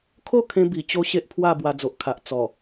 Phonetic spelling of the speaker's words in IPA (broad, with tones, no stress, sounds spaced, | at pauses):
kʰ o˥˧ kʰ ẽ˧ b i˨˩ t͡ɕ o˦ ɕ e˦ ʔ pʰ w a˥˧ b w a˧ d͡z o˨ ʔ kʰ a˨ ʔ t͡s ɔ˨˩